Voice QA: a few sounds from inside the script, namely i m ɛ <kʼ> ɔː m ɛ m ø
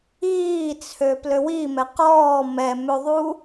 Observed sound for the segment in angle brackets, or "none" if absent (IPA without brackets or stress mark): q